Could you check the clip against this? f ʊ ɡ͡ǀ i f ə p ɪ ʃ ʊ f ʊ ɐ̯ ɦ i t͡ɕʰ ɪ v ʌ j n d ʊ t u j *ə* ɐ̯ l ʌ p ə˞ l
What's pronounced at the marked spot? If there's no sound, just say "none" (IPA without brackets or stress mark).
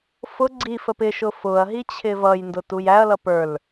æ